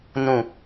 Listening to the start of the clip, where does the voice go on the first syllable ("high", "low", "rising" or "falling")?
low